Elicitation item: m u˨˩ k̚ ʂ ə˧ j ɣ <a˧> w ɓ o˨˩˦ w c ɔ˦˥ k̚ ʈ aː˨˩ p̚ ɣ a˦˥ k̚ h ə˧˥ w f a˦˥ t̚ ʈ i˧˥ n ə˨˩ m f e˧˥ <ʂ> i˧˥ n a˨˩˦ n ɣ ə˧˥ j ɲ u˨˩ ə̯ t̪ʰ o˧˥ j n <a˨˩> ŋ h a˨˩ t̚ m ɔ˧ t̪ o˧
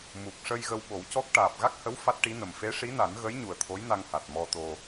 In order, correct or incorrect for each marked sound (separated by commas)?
incorrect, correct, incorrect